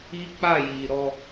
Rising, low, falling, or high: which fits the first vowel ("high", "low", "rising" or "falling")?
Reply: high